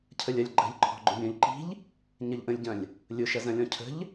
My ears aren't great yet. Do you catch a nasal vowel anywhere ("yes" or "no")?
yes